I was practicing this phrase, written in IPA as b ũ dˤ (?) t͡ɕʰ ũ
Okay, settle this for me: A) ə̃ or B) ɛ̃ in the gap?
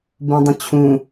A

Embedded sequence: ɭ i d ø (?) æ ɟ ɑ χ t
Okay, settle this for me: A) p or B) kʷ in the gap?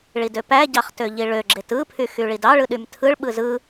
A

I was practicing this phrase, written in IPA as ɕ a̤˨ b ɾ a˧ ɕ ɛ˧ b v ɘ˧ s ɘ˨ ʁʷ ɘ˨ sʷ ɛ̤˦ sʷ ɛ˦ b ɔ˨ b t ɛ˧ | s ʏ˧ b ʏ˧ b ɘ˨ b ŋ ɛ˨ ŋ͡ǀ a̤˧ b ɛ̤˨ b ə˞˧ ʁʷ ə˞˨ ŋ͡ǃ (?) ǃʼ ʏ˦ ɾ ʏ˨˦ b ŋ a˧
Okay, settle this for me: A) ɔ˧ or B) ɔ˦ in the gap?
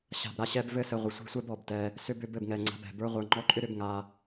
B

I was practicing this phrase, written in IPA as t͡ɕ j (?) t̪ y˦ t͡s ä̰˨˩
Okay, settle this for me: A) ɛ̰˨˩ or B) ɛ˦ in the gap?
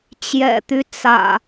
A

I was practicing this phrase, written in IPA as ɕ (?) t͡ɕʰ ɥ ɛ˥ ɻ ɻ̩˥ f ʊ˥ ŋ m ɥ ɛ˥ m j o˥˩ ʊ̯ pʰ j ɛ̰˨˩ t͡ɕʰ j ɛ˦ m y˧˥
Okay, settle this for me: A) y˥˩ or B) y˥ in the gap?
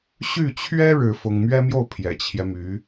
A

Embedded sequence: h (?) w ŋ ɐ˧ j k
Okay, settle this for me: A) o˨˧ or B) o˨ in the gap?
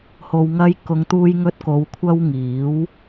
B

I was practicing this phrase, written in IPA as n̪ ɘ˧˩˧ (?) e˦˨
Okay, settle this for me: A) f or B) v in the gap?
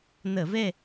B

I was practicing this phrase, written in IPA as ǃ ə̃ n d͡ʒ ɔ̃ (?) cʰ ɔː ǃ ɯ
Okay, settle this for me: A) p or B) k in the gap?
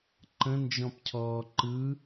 A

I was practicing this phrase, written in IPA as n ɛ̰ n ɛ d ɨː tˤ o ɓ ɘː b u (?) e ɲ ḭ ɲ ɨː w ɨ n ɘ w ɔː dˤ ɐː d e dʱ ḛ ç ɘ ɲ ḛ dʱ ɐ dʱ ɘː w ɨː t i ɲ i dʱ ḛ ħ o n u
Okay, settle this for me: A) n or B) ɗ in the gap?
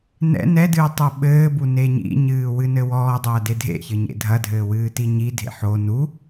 A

